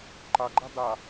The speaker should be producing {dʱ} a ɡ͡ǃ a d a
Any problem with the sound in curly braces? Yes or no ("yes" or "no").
yes